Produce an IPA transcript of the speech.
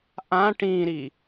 ʔã ʈĩɾi

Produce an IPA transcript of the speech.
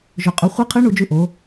ʒɵ˧qʼɵ˧˥ χʷi˧˥qʰɨ˧˥ ɳu˧d͡ʒʉ˧ ʔo˩˧

